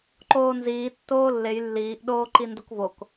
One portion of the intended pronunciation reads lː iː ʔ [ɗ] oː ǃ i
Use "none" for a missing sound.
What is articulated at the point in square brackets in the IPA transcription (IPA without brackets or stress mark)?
ɗ